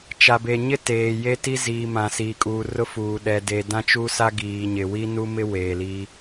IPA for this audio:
t͡ʃ a˨ b e˨ ɲ ɪ˦ t eː˨ j e˦ t i˦ z iː˨ m ã˨ s iː˨ kʼ uː˨ r ʊ˦ f uː˨ ɗ ɛ˨ d e˨ d ã˦ t͡ʃ u˦ s a˦ ɡ iː˨ ɲ ɪ˨ w i˦ n u˦ m ɪ˦ w eː˨ l iː˦

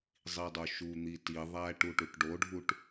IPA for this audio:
zˤ i dˤ o ʃ u n̪ i t i ðˤ æ ʈ u ʈ u ʈ ɖ o ɖʱ u ʈ

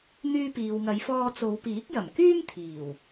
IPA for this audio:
n̪ yː˧ p iː˨ w ŋ ɐ˨˧ j f ɔː˧ t͡s o˨˧ w p iː˨˥ k̚ j ɐ˨˩ m k yː˥ m t̪ʰ iː˨˩ w

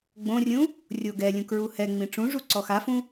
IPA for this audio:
ɡ͡b õ rʲ ũ | rʲ o ɡ ɛ lʲ ũ k ɹ u h ɛ ŋ͡m ĩ ʈ͡ʂ ũ ʐ u ǀ ɔ x a f ũ

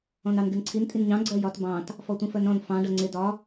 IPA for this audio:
ɔ̃ n ɑ n ɡ ɪ n ǀʰ i n tʼ i n ɲ ɑ̃ ɡ͡ǀ ɜ j ɒ t b ɑ̃ t | f ɔ tʷ ĩ f ɜ n ɾ ɔ̃ n f ɑ̃ ɖ ʌ ŋ͡ǀ ɪ d ɒ

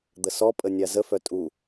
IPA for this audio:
d̪ ə s ɔ pʼ ə nʲ a z ə f œ tʼ u

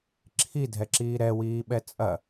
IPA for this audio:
ǁʰ i dʱ ɛ ǁ iː ɾ ɛ w iː ɓ ɛ t͡sʼ ɐ

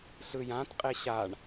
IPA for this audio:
ɬ ɯ j ã t qʼ e ɕ a ɳ

